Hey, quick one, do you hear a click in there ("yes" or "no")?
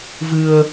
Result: no